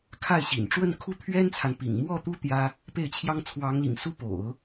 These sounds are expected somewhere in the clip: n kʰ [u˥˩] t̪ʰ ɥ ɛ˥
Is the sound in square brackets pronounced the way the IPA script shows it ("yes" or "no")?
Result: yes